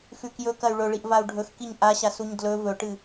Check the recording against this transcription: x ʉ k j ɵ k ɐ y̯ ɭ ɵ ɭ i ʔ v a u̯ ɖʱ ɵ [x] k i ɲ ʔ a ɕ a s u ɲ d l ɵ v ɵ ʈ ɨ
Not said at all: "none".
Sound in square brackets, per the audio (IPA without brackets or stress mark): x